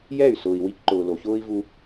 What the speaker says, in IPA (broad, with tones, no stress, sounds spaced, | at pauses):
j ɛ˦˨ y̯ s ʊː˨ i̯ w i˧ k ǃ ʊː˨ l o˨ ç ʊː˦ i̯ v u˧